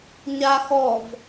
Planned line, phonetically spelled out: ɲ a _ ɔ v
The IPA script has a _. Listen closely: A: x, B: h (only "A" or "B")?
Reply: A